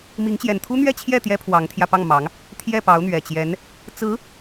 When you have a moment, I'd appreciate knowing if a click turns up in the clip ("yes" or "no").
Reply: no